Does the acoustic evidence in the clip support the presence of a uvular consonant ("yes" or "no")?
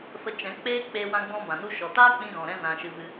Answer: no